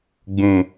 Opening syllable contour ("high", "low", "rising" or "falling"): low